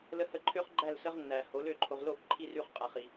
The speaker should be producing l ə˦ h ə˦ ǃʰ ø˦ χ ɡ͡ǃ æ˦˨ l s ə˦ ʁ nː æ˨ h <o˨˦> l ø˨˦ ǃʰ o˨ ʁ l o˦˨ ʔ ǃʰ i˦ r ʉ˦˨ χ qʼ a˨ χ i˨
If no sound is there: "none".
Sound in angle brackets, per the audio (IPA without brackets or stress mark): o˨˦